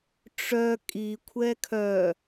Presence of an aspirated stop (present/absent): present